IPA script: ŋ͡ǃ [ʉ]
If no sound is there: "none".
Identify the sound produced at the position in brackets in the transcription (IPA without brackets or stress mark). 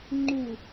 u